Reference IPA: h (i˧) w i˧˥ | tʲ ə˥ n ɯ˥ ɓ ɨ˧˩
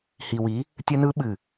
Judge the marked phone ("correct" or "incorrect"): correct